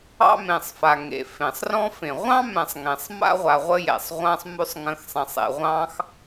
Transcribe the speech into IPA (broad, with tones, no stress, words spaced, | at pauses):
ɑ̰˥mẽ˨sˤfa˨ ŋḛ˩fẽ˩sˤrɔ̃˥ fẽ˩ ʁʷɑ̃˥mɛ̃˨sˤŋẽ˩sˤ ma̰˥ʁʷa˨ʁʷə˦ jɛ̰˩sˤʁʷã˦sˤmʉ˦sˤ ŋə̃˨xsˤɛ̃˩sˤḛ˩ ʁʷɑ̃˦x